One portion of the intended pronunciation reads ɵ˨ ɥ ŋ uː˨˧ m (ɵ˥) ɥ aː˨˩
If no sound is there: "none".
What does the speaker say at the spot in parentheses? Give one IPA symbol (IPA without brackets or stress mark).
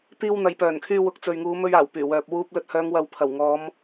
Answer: ɵ˧